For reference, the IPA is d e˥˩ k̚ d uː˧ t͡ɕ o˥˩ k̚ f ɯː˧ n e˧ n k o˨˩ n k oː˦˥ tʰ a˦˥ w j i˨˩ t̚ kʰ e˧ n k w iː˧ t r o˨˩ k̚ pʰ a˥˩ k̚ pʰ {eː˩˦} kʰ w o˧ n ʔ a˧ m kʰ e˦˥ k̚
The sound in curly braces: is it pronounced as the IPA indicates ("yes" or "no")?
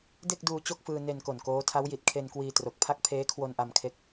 no